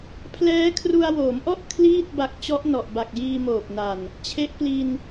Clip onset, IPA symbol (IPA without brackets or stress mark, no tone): pʰ